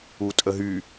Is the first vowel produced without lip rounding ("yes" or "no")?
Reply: no